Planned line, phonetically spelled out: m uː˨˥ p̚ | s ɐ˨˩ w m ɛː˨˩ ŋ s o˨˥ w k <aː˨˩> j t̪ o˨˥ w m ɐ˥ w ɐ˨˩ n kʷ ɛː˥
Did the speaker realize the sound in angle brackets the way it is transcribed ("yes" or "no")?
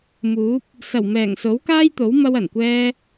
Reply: no